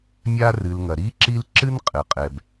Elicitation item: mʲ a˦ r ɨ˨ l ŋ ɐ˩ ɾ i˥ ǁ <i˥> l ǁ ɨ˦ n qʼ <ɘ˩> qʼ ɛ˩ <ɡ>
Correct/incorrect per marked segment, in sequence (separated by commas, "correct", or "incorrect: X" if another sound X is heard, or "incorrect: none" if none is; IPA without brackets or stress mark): incorrect: i˦, correct, incorrect: b